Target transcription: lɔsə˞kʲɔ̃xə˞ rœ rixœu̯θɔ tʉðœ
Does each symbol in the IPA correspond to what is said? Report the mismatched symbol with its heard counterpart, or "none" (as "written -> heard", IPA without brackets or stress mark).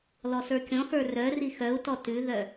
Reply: θ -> t